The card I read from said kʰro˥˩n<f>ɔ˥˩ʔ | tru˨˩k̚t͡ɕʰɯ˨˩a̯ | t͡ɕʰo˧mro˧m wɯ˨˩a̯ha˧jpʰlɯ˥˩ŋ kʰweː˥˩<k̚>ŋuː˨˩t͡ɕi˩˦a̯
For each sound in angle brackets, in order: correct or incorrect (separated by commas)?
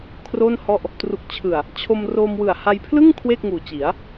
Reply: incorrect, correct